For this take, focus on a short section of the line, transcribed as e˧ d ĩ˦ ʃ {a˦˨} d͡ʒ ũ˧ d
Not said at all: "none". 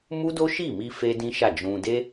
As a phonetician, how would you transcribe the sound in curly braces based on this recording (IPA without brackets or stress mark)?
a˦˨